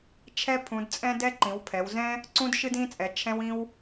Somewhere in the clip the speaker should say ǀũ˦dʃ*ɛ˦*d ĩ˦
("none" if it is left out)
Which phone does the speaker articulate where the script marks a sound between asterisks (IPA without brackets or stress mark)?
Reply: ɨ˦